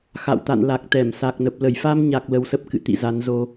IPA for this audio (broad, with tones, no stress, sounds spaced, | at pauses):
x a̰˧˨ w t̪ a̰˧˨ n l a˨˩ k̚ t̪ ɛ˧˩ m s a˨˩ k̚ n ə˨˩ p̚ l ə˧˩ j f a˧ m ɲ a˨˩ k̚ l ə˧ w s ə˦˥ p̚ k ɨ̰˧˨ t̪ ḭ˧˨ z a˨˦ n z o˧